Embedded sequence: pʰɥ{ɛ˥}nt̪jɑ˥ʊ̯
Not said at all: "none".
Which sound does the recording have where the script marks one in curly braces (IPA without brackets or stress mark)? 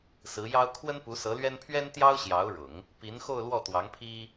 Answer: ɛ˥